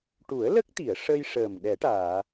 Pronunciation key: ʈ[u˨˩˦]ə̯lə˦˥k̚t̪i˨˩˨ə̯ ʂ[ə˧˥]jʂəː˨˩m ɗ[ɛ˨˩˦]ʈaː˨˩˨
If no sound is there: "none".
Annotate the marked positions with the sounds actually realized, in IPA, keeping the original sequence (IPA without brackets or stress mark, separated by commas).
u˨˩˦, ə˧, ɛ˨˩˦